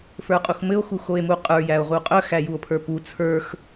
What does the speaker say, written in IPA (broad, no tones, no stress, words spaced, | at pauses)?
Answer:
fə˞qʼuxmɘo̯ xuxoe̯muqʼə˞ jæo̯ʁuqʼœ xæjuo̯pʰə˞pu t͡sʰə˞x